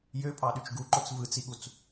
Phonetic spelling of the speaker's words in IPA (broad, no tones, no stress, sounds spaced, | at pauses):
j ø pʼ ɑ ɗ y t͡ʃ ɡ u ǃ o t͡s v ɯ t͡s i ɠ u t͡s